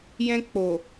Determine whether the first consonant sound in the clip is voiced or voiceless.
voiced